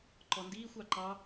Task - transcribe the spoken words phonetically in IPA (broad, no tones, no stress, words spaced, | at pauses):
ǃɔndiːxʷ ɑǃɑ